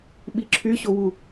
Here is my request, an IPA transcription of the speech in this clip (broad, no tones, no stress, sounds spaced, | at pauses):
ɓ i ǁʰ y ɕ o w u